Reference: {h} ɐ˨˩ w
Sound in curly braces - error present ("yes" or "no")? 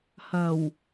no